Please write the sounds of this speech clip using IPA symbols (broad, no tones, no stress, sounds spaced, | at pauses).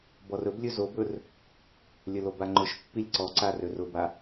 b ɔ r ɵ b lʲ ɵ z o b ɵ r | lʲ ə l o b a ŋ͡ǃ ʊ ʃ pː i lʲ ǀ ɔ ǀ a r ø r ʊ b a